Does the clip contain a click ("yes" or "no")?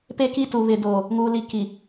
no